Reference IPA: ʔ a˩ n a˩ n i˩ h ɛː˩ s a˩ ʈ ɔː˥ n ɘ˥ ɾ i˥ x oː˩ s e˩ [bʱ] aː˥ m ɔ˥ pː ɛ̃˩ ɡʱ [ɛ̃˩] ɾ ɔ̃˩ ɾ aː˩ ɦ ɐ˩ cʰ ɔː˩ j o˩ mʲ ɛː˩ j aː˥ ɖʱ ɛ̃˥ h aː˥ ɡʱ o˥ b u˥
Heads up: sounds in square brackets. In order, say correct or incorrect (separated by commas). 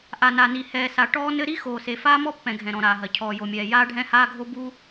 incorrect, correct